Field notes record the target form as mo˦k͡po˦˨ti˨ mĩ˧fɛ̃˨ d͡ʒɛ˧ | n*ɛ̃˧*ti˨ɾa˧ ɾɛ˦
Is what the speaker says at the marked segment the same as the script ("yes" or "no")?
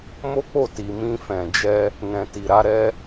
no